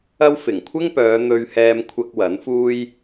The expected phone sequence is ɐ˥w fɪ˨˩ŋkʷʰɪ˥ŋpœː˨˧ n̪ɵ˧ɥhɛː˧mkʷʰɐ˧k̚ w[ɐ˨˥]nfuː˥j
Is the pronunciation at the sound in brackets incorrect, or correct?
correct